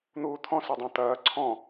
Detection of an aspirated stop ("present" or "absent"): present